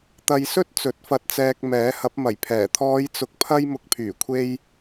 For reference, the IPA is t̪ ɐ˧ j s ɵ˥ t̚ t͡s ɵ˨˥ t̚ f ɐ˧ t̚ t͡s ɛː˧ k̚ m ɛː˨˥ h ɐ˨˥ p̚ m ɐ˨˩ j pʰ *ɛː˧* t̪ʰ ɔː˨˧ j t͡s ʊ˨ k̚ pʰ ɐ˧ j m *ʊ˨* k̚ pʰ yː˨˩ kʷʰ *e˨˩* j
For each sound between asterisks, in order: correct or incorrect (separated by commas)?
incorrect, correct, incorrect